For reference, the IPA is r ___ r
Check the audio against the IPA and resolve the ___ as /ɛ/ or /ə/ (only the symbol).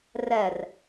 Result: ɛ